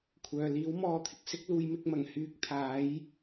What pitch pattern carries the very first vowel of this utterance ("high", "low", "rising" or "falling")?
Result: low